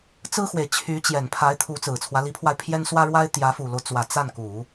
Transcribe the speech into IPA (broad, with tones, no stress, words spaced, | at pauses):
t͡sɹ̩˥xwe˨ɪ̯ t͡ɕʰy˧˥t͡ɕjɛ˨˩npʰa˧˥ɪ̯t̪ʰu˧˥ t͡sɹ̩˨˩t͡sʰwä˦li˧˥pʰwa˧ɪ̯ pʰjɛ˥nswä˥ɻwa˥ɪ̯ t̪jä˧˥fu˨˩lo˦ʊ̯t͡swä˨˩ t͡sa˥˩nku˨˩˦